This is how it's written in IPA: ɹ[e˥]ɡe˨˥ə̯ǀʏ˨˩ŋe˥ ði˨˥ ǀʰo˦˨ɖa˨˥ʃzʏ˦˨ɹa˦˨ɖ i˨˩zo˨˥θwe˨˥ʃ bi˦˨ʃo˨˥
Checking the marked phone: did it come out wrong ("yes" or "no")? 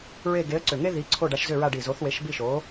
yes